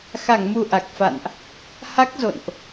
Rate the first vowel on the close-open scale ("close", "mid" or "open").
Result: open